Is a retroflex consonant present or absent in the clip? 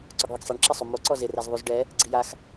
present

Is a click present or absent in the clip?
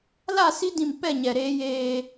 absent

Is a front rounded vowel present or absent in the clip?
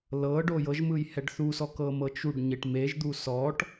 absent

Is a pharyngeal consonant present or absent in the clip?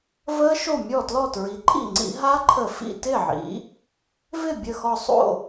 present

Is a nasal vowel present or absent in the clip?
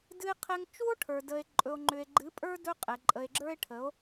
absent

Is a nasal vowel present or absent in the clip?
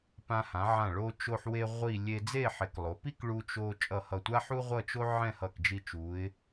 present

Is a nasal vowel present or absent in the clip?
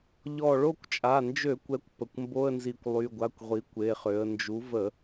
absent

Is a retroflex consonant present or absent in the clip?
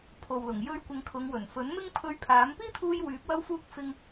absent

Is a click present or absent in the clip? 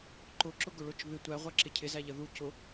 present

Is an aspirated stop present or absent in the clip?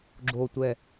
absent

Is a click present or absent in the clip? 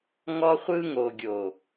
absent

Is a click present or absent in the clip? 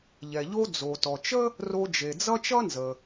absent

